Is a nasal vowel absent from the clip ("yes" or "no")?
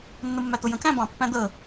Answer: no